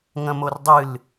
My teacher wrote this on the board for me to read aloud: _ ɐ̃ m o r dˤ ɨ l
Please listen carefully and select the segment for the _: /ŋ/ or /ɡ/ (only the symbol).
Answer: ŋ